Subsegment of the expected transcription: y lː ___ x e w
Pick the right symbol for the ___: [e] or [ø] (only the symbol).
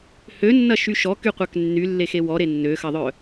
e